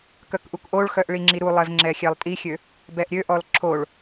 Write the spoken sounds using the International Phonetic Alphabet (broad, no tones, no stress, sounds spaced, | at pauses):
k œ k ʔ u k ʔ o ɭ x œ ʔ ɭ i ŋ͡ǁ i ɾ u lˠ ɛ v ŋ͡ǁ ɛ xʲ ɛ lˠ tʼ i xʲ ø | b ɛ ʔ ɾʲ ø ʔ ɔ l ǁʰ o ɭ